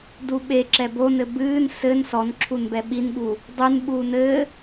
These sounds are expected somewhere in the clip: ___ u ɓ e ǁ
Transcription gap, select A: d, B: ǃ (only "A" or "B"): A